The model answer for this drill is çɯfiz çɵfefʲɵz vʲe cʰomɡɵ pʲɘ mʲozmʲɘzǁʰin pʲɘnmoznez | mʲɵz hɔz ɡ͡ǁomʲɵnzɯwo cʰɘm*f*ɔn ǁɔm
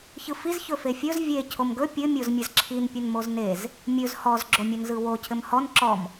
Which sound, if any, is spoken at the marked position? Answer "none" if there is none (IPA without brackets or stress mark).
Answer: h